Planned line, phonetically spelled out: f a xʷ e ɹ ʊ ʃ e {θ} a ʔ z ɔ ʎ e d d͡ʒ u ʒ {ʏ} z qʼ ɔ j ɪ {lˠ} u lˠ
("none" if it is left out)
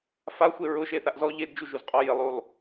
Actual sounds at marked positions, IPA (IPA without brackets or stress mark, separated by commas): θ, u, lˠ